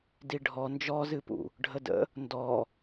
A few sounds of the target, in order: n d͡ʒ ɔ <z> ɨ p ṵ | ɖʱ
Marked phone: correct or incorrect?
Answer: correct